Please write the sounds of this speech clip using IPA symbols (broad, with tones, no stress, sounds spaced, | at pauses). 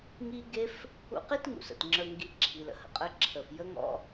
ŋ i˦ ɡ e˦ f | ṵ˦ q i˦ t ŋ ṵ˨ s ə̰˨ t ŋ͡ǁ ə˞˧ ŋ ɡ i˧ ǁʰ i˨ l ə̰˨ h ə̰˨ qʼ ə˧ ǁʰ ə˨ f j ə˦ ŋ ɔ̰˦